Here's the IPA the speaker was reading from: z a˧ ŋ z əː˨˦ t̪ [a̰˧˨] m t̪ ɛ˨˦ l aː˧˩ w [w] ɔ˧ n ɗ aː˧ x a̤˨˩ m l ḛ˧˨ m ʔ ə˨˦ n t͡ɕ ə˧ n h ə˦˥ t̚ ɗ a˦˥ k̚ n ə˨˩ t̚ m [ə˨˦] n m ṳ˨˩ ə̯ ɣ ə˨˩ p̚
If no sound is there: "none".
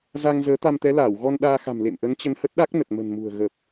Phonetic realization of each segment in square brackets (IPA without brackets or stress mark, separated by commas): a˧, ɣ, ə̤˨˩